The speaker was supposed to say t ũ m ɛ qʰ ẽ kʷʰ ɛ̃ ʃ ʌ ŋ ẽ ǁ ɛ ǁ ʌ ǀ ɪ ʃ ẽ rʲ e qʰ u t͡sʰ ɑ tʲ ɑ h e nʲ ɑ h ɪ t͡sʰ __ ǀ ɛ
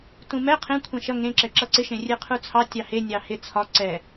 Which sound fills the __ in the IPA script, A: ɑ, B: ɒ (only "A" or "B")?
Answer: B